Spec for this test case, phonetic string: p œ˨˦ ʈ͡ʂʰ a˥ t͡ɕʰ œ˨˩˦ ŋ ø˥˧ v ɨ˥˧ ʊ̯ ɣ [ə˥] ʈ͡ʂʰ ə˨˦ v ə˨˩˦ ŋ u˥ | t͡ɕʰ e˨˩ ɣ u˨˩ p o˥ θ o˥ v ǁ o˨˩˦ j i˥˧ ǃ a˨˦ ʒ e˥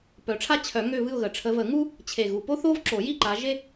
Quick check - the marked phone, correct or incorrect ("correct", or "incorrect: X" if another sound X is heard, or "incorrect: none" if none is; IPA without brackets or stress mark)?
incorrect: ə˨˩